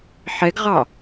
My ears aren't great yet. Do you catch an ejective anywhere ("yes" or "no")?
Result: no